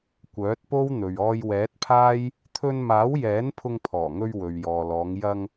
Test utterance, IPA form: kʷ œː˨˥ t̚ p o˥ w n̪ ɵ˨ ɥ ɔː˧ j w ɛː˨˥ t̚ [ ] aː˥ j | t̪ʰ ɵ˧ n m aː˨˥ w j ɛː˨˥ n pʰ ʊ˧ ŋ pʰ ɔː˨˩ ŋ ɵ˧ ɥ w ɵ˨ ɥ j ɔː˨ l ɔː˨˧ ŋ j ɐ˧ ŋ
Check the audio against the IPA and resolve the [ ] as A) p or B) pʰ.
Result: B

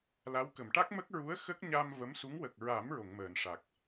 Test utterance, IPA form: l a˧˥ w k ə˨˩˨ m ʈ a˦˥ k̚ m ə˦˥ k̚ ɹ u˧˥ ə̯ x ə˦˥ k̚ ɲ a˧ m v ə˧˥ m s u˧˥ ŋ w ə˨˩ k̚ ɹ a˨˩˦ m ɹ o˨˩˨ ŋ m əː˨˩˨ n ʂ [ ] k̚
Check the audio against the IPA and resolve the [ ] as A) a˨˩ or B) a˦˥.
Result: A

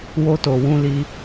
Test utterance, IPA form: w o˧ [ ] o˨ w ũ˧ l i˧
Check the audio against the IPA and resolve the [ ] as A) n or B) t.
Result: B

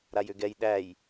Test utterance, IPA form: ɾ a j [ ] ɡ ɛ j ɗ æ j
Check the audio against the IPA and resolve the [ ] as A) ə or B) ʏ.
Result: B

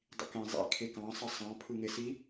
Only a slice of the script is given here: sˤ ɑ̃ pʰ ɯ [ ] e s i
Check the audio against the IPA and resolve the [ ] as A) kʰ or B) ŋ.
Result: B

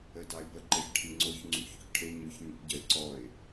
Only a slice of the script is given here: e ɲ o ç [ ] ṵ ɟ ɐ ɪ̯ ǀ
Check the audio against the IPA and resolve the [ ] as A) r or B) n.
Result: B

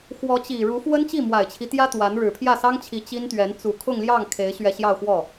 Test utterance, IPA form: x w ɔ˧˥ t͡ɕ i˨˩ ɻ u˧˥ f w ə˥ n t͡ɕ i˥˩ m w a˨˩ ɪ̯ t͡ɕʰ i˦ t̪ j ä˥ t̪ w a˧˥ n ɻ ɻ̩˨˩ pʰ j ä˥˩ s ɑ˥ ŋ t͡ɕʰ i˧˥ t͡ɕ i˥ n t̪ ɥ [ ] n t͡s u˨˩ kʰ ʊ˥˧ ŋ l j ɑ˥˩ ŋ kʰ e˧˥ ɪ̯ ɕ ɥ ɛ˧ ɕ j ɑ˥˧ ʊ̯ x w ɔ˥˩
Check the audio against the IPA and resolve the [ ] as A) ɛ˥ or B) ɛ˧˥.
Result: B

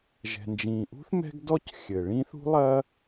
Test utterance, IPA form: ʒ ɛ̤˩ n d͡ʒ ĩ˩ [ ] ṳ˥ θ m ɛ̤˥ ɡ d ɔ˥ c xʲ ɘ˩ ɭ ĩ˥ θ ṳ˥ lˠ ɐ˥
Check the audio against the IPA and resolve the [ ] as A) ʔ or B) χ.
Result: A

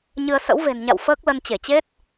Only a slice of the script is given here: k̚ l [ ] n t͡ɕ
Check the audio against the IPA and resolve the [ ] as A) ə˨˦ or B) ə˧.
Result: B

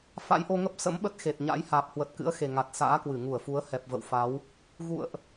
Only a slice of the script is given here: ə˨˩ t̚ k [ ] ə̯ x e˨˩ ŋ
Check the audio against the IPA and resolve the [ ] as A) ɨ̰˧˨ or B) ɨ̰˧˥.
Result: B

